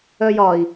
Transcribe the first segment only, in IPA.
œ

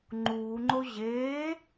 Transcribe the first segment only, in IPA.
ŋ͡ǃ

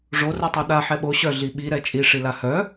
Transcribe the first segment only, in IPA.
ʐ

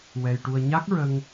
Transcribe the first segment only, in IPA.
w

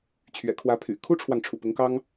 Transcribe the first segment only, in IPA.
t͡ɕʰ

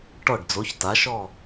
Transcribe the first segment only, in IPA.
ʈ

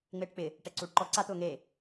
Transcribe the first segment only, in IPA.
ŋ͡m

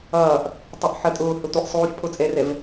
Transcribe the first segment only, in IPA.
ʌː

